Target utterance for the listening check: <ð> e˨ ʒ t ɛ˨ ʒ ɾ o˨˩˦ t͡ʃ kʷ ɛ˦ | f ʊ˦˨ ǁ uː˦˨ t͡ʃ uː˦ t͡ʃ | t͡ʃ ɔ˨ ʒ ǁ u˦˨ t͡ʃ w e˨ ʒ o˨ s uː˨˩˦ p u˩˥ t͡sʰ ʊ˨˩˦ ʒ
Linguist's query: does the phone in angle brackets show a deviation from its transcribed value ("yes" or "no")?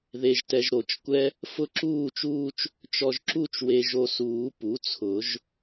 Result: no